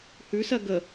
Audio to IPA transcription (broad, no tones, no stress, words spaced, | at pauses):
hʉsɜ ɡə